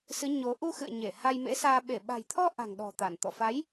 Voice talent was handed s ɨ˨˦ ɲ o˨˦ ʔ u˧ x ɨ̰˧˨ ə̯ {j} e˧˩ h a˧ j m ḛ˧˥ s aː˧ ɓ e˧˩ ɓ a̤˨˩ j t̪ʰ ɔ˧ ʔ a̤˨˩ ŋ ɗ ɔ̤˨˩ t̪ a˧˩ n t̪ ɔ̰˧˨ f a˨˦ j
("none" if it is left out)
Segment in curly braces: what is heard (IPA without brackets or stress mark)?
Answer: ɲ